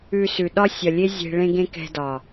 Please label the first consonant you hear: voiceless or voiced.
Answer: voiceless